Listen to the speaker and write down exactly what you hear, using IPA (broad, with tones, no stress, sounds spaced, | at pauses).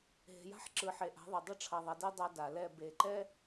ɦ e̤˨ j a̤˦ ħ ǁ ɯ˨ ħ e˨ ʔ a̤˨˦ ðˤ e˨ dˤ ʌ˦ ʈ͡ʂʰ ʌ˨ ðˤ ʌ˨ d e˦ dˤ a˦ d a˨ l ɛ˦˨ b e˨ ǃ ɛ˦